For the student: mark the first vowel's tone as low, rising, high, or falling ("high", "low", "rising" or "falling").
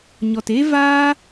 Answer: low